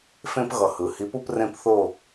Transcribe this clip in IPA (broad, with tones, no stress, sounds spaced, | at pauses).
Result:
f ẽ˦ p ɣ ʌ˨˩ h ɯ˩˧ h i˨˥ p u˦ p r ẽ˦˨ p θ o˦˨